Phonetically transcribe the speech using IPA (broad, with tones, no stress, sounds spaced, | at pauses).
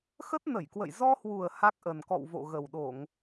x ə˦˥ t̚ n ə˧˩ j k w ə̰˧˨ j z ɔ˧ h w u˨˩ ə̯ h a˦˥ k̚ ʔ ə˨˩ n k ɔ̰˧˨ w v o̰˧˨ ɣ ə˨˩ w ɗ o˧˩˨ ŋ